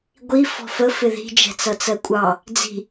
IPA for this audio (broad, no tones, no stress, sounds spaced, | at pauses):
ɡʷ i f ɔ̤ f ə f ɪ ð i̤ d͡ʒ ɛ̤ t͡s ʌ t͡s ɜ kʷʼ ɑ | d͡z i̤